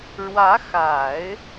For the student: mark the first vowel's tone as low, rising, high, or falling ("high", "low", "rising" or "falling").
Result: rising